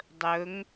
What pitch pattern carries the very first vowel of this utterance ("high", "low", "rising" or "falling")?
rising